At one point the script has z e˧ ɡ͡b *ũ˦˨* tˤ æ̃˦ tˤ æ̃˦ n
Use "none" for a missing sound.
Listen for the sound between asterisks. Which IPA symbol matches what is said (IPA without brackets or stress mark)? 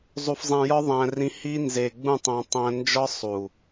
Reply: ũ˦˨